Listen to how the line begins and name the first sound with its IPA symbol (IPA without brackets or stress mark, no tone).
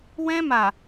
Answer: w